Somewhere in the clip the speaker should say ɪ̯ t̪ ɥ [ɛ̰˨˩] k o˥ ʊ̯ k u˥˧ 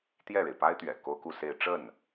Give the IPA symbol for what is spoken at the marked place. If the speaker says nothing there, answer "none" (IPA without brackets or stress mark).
ɛ̰˨˩